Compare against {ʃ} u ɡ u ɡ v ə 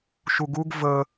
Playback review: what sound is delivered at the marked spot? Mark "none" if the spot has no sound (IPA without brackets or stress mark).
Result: ʃ